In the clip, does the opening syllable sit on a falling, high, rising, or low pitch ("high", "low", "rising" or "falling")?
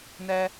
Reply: low